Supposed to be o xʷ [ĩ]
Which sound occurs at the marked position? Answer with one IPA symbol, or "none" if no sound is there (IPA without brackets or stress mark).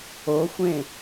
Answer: ẽ